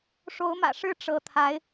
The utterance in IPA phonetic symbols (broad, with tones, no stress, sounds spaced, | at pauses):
ʂ o˧˥ ʊ̯ m ä̰˨˩ ʂ ɻ̩˥ ʈ͡ʂ ɤ˧˥ t̪ʰ a˧˥ ɪ̯